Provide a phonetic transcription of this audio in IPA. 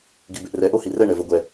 ɡ i b e ʔ r ɛ ʔ o h i r ɛ ɳ ɛ v ɛ ɡʷ ɛ

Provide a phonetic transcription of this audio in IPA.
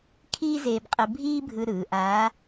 kʰ iː˥ z eː˧ b qʼ ɘ˧ bʱ iː˥ bʱ ɯ˧ ɾ ɯː˩˧ ʔ aː˧˥

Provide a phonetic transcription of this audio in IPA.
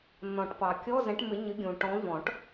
nː ɔ̃˨˩˦ ʈ p ɑ˨ kʲ ɔ˧˥˧ z ɛ̃˨˦ ʈ m ɪ˨˦ ɲ ɪ˨˦ ɡʲ ũ˨ ʈ ɔ̃˨˦ v ɔ̃˨˩˦ ʈ

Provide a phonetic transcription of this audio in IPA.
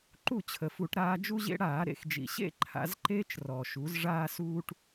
ǃ u˥˩ t͡ɕʰ ə˨˩ f u˧˩˧ ʈ ɾ aː˦ d͡ʒ u˦ ʑ ḛ˦ ɽ aː˧˩˧ ɾ ḛ˨˩ x d͡ʒ ḭ˨˩ ɕ ḛ˥˩ ǃʰ a̰˩˧ z ǃ eː˦ t͡ʃ r ɔ˨˩ ʃ u˩˥ z ʐ aː˦ s uː˦ ʈ

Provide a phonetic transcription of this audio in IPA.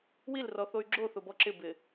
w i l r ɔ θ o y̯ ɡ͡ǁ o θ ʊ b ɔ ǁ ɪ b ɪ

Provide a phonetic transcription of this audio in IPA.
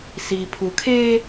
s i˨ pʰ u˨ kʰ eː˦

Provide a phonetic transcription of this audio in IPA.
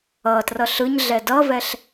ʌ t r ʌ ɬ ɯ ɲ ɮ ɛ d ʌ v ɛ ɬ

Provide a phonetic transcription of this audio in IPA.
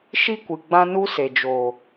ʃ i˦ kʷ ɨ˨ ɡ͡b ã˦ n u˦ s e˨ d͡ʒ oː˨

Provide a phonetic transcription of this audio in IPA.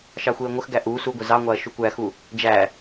ʃ ɑ xʷ e ɐ̯ ŋʷ ə x ɡ æ ʔ u s u ɡʷ e z ɑ ŋʷ ɑ ɐ̯ ʃ u kʷ æ x u | d͡ʒ æ

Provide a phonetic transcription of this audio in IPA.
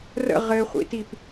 r ə̰ ʁ ɘ χʷ ḭ t i p

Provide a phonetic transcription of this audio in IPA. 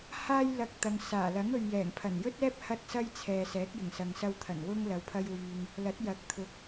h aː˥ j l ɐ˧ k̚ t̪ ɐ˨ ŋ s aː˨˩ l ɐ˨˥ ŋ ɵ˨ ɥ j ɛː˨˩ ŋ pʰ ɐ˨˩ n j ɵ˥ t̚ ɛː˥ p̚ h ɐ˥ t̚ s ɐ˥ j t͡sʰ ɛː˨ s ɛː˨˥ k̚ j ɪ˨˩ ŋ s ɐ˨ ŋ s ɐ˧ w t̪ʰ ɐ˨˩ n w ʊ˥ ŋ l ɐ˨ w pʰ ɐ˧ j w yː˨ n | l ɐ˨˥ t̚ j ɐ˨˥ k̚ t̪ʰ ʊ˨˥ k̚

